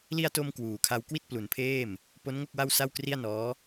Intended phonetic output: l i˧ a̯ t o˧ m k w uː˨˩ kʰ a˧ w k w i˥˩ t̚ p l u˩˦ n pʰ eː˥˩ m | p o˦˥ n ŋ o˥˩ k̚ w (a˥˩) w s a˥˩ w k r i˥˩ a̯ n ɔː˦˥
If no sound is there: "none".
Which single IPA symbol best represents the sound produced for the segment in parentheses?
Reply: a˥˩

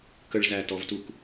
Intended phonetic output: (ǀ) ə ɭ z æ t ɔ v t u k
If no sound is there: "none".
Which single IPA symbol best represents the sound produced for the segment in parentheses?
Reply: k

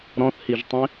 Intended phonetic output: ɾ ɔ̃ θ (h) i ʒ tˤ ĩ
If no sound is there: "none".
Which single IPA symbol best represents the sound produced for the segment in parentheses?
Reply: h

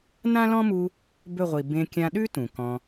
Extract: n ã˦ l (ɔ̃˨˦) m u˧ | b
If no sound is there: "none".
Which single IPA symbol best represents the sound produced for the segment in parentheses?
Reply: ɔ̃˦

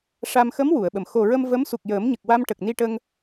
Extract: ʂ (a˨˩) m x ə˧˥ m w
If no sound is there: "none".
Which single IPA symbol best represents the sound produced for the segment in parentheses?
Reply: a˧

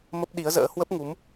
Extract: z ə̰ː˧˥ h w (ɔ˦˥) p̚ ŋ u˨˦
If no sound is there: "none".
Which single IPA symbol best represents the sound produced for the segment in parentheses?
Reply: ə˦˥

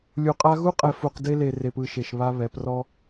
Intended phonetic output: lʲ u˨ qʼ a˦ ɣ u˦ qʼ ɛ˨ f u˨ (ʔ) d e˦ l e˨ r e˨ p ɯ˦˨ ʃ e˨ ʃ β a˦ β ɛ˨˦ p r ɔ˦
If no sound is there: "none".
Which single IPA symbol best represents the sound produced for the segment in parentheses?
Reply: q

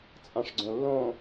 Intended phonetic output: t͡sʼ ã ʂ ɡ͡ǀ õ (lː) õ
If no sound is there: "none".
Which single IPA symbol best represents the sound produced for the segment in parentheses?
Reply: lː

